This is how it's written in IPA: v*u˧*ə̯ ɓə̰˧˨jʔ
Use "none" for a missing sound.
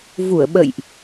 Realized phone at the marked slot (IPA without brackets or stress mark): u˧˩